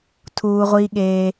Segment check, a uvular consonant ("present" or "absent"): present